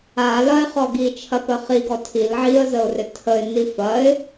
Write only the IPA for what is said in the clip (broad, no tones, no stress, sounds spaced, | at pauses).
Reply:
a l ɐ ɪ̯ χ ɔ ɡ i t͡ʃʰ ɐ p ə χ i ɡ ɔ tʰ i l ʕ i ə̯ z ə ʊ̯ r ɪ tʰ ə ɪ̯ n i f ɐ ɪ̯